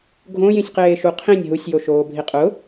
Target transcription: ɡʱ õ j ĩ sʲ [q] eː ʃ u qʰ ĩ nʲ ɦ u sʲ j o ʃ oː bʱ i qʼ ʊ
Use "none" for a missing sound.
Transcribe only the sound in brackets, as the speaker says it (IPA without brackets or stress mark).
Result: q